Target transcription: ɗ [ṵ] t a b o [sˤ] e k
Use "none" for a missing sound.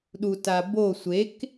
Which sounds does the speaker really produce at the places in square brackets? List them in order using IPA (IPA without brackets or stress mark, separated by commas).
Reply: u, sʷ